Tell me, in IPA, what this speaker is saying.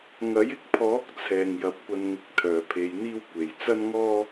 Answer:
ŋɐ˨˥jɪ˧k̚pʰɔː˨˥k̚ t͡sʰɛː˨ŋjɐ˨˥p̚kʷɐ˧nŋɪ˧k̚ t̪ʰœː˨pʰe˨˧jn̪iː˥wkʷe˨˩j t͡sɐ˥nŋɔː˥

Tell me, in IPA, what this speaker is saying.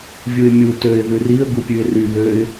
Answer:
vʲuɪ̯mʲu tøɪ̯ ðʉriə̯ ɡupʲʉɪ̯ry βøɪ̯

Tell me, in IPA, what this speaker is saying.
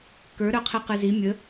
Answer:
kə˞ ɾœqʰiqɨzi mʲə

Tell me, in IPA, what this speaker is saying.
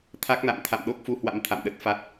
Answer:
t̪ʰa˦˥k̚na̰˧˨m t̪ʰa̰˧˨mɗo˦˥k̚fu˧hwa̰˧˥m t̪ʰa̰˧˨mɗə˦˥t̚fa˦˥t̚

